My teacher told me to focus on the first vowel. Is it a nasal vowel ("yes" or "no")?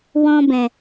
yes